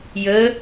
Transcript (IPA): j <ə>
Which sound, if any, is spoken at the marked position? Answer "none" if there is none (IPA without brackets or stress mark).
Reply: ə